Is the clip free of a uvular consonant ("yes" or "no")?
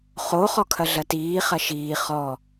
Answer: no